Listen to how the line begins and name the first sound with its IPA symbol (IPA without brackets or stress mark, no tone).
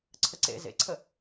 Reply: ǀʰ